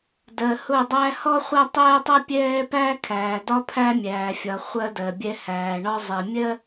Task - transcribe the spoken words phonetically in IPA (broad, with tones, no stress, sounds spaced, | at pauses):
d ɜ˨ h ʊ˦˨ dˤ æ˦ h ɔ˦ χʷ æ˦ tˤ ɛː˦ tˤ ʌ˦ pʲ ɛː˦ p æː˦ kʰ æː˨ d ɒ˦ pʰ æ˦ mʲ æː˨ fʲ ɒ˨ χʷ ɜ˦ d ɜ˨ bʲ ɛ˦ h æː˨ ɳ ɒ˦ zˤ ɛ˨ mʲ ɜ˦